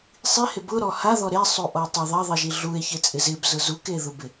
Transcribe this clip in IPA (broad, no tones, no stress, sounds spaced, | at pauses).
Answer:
sˤ i h ɪ b ʊ ɾ ɔ h a ð ɔ ɾ e sˤ u ʔ ɔ tˤ ɪ ðˤ ɛ ðˤ i ʒ i ɮ u e̯ ç ɪ t͡sʼ ɪ z ɪ b z ʊ z u k e ð ʊ b ɪ